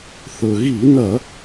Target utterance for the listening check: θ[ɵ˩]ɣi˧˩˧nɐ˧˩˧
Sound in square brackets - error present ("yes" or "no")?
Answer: no